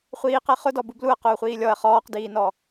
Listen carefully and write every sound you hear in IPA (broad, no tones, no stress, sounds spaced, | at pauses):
χʷ iː q ɛ χ ʊ d ɔ b u b l u ɐ̯ q ʊː χʷ iː lʲ ɔ ɐ̯ χ ɔː q d iː n ɔ